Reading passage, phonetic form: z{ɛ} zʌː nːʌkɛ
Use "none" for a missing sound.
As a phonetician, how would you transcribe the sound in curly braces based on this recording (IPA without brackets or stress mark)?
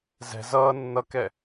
ɛ̤